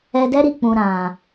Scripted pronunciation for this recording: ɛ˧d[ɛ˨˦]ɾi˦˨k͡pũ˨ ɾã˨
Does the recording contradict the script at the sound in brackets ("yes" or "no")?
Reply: yes